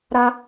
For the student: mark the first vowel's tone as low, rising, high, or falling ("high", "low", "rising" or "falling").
high